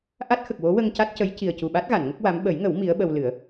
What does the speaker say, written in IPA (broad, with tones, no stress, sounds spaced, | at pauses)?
ʔ a˦˥ t̚ x ə˨˩ k̚ w o˧˥ w ə˧ ŋ c a˦˥ t̚ c ə˧˥ j c i˨˩ ə̯ c u˨˩ ɓ a˦˥ t̚ ɣ a˨˩˨ n ŋ ə˦˥ k̚ w a˧˥ m ɓ ə˨˩˦ j ŋ ə˨˩˦ w m i˧˥ ə̯ ɓ ə˧ w l ɨ˨˩˦ ə̯